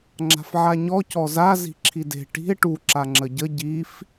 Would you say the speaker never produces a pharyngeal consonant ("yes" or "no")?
no